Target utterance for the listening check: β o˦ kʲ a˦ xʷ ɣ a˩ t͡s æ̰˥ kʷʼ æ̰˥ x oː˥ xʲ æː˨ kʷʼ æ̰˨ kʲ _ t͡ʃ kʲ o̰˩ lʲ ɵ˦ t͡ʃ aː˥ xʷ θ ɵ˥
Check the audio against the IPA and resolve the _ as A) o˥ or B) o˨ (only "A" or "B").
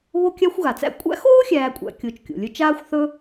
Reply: B